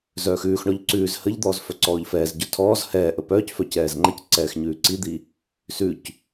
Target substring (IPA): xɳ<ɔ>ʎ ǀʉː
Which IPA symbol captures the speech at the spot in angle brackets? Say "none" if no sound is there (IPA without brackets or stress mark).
ɔ